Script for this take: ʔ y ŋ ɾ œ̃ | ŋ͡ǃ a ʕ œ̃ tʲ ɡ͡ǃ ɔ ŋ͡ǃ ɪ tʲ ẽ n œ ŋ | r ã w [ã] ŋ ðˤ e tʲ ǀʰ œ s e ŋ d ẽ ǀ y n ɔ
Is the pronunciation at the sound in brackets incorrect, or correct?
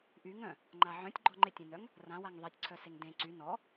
incorrect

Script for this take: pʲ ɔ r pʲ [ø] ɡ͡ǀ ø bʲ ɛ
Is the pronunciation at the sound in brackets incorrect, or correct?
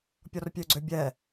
correct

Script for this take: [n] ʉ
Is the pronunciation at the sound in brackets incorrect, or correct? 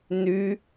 correct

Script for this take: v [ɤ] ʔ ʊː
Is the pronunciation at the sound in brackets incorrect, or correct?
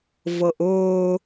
correct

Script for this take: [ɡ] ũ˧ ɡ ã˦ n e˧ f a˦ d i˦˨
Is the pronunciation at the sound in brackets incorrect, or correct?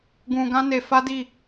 correct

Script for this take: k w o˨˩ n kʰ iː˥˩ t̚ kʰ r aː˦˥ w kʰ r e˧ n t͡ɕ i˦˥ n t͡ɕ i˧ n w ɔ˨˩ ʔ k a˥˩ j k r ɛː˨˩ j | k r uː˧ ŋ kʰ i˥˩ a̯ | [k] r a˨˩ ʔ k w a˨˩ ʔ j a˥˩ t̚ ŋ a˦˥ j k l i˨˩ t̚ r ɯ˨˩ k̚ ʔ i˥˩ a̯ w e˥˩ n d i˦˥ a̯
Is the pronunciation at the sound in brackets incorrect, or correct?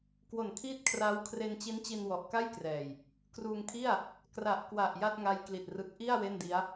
correct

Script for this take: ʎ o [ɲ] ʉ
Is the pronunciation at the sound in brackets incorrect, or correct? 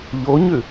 correct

